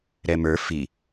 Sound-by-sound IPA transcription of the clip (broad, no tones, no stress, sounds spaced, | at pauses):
ɾ ɛ m ə˞ f i